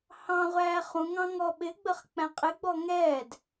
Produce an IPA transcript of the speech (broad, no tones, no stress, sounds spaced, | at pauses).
h ɑ̃ ʁʷ æː χ ũ ŋ ɑ̃ ŋ ɔ ɓ ɪ ɡ͡b ə χ k͡p æ̃ qʼ ɪ ɡ͡b ɔ ŋ ɛː d